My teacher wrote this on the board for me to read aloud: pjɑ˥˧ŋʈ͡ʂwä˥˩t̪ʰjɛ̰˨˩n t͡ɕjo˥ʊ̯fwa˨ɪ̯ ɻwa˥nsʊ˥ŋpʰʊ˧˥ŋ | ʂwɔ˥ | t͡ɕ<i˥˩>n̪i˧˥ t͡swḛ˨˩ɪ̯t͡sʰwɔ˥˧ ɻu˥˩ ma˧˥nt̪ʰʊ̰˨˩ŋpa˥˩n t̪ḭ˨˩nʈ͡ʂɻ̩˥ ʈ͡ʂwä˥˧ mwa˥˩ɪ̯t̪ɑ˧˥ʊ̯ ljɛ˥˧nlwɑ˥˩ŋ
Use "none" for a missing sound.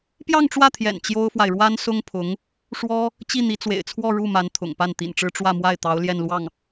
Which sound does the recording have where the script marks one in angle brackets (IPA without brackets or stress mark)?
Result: i˥˩